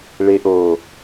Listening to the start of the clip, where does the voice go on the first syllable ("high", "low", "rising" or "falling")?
low